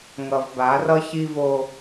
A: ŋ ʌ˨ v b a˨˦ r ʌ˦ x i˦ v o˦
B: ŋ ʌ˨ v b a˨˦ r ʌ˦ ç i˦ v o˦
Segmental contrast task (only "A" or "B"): B